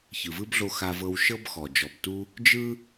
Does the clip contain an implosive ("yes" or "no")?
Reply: no